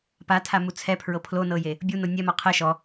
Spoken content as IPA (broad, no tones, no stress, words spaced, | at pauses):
patʰamu t͡sʰɛpʰɹɤ pʰlonɤje | bʲuno nʲɛmɔ qʰɛ ʃɔ